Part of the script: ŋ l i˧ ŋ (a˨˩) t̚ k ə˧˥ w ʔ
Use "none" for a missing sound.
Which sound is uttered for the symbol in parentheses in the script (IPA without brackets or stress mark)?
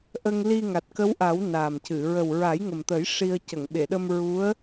a˨˩